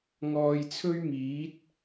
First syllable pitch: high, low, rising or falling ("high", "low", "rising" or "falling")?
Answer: low